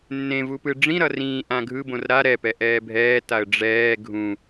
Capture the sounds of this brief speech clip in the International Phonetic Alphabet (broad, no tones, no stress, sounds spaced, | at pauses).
nː ẽ v u p ɯ ɖ͡ʐ ĩ ɾ ʌ r ĩː ʔ ã ɡʱ ɯ b õ r ɾ a ɾ ɛ p ɛ ʔ ɛː bʱ ɛː t a ə̯ ɖ͡ʐ ɛː ɡʱ ũ